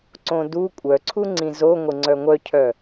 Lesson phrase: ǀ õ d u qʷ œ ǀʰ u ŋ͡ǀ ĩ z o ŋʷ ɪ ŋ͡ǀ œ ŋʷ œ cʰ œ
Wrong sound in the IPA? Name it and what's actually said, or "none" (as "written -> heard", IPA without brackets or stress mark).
qʷ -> kʷʼ